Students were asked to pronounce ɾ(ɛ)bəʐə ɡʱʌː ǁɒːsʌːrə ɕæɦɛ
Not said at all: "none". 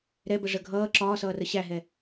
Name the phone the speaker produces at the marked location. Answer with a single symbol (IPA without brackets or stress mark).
ɛ